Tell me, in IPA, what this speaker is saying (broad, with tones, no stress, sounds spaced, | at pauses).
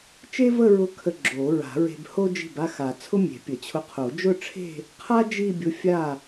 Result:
t͡ʃ e˥ v ə˥˧ ɹ ʊ˧˥ kʰ ə˧ ɡ͡ǁ o˨˩˦ ɹ a̤˨˩˦ ɹ e̤˧ b h o˥ d͡ʒ i̤˥˩ b a˥˧ x a˨˩˦ t͡sʰ ʊ˥ mʲ e̤˨˩˦ pʲ ə˨˩˦ t͡ɕʰ ʊ˧˥ qʰ o˨˩˦ d͡ʒ ʊ˥˧ ʈ͡ʂʰ e̤˥˧ | qʰ a˥ d͡ʒ i˥˧ bʲ ʊ˧˥ fʲ a˥˩